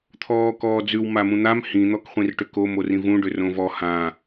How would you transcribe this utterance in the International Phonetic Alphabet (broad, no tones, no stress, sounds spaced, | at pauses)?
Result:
t̪ʰ ɔː k ɔː d͡z ʉ w m a m ũ n̪ a m h ĩ n̪ ɔ k χʷ ĩ r ʈ ʏ k o m o r ĩ v ũ ɖ ʏ r õ v ɔ h ã